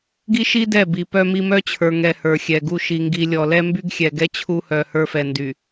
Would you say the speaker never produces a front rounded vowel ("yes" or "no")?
no